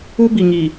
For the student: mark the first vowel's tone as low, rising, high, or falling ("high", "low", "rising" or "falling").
high